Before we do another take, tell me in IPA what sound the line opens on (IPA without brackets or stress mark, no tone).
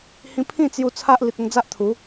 h